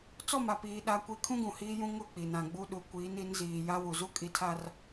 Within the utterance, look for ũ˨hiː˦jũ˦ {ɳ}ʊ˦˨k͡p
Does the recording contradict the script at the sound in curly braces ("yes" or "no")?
yes